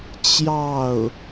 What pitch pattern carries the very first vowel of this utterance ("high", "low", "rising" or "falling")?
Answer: falling